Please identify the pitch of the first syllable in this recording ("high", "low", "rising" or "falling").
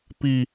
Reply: low